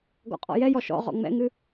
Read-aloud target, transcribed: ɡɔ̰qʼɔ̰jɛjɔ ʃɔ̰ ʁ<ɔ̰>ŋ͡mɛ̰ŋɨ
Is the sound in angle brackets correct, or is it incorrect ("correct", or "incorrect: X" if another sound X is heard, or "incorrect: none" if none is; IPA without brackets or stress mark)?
correct